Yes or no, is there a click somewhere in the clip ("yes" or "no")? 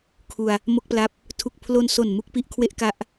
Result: no